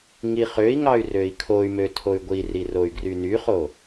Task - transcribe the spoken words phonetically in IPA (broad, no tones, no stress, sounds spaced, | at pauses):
ŋ i χ ø i̯ ŋ ɑ y̯ r ø i̯ kʰ o y̯ m ø tʰ o y̯ ɡʷ i r i r o y̯ ɡ r y n y χ o